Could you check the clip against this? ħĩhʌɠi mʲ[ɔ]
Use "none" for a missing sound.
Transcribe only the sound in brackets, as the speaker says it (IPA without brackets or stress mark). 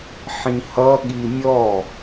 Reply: ɔ